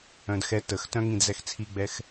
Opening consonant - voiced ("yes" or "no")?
yes